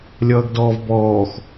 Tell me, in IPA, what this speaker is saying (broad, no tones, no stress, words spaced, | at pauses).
lʲʌːɡdɔːvbɔːx